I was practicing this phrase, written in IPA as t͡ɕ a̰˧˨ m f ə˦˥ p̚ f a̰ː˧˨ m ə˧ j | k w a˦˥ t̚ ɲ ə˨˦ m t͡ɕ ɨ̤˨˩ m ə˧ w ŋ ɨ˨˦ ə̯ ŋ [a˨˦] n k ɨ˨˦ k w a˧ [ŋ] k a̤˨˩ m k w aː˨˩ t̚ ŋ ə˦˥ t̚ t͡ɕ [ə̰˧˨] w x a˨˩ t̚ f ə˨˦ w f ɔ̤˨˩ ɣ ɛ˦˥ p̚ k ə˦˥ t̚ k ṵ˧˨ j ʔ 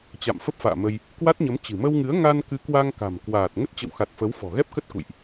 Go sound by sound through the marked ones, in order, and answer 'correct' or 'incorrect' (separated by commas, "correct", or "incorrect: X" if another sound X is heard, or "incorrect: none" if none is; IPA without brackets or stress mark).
incorrect: a˧, correct, correct